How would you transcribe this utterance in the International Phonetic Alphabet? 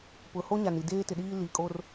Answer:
p ʊ˨ h o˦ ɲ a˨ n i˨ d eː˦ t ɪ˨ ɗ iː˦ l iː˨ kʼ o˦ r

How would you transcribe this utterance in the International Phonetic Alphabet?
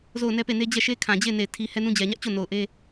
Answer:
z o˦˨ ʊ̯ n ɛ˦ p e˦˨ n e˦ d͡ʑ ɛ˦˨ ʃ e˦ kʰ ã˨ d͡ʑ e˦˨ ɪ̯ n e˦˨ ɪ̯ tʰ i˦ h ɛ˦ n ũ˦ d͡ʑ ɛ˨ ɲ ä˦ ʔ t͡ɕ o˦˨ n o˨ ʊ̯ ʔ e˦

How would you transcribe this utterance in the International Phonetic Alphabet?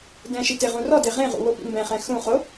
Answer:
d ɛ̃ ʃ i t e ʁ ũ r ɔ d e ʁ ẽ ʁ ṵ w o p ḭ m b ɛ̃ χ ɛ̃ x ũ χ o

